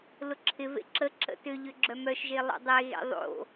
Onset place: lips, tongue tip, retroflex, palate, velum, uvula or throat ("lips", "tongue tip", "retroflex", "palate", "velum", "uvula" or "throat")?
tongue tip